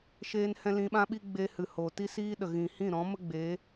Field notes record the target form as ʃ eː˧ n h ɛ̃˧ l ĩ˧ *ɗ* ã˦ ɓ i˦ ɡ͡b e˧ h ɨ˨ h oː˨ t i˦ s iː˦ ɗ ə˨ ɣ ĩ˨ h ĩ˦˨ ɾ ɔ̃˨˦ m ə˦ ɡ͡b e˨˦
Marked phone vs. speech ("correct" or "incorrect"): incorrect